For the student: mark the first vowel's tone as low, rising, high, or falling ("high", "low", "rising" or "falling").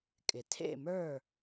low